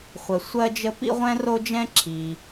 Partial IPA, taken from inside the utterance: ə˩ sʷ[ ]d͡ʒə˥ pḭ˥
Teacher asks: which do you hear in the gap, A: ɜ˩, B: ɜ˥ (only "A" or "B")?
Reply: B